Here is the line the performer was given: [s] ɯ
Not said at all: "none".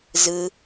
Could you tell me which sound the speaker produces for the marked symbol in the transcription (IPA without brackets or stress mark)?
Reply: z